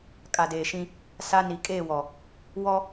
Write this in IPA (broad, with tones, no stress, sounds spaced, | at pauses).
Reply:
kʼ a˨ d eː˨ ʃ ĩ˦ | s a˦ n i˨ kʼ eː˦˨ w ɔ˨ | w ɔ˦